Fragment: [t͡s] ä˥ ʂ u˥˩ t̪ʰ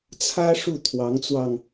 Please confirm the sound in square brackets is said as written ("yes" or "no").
no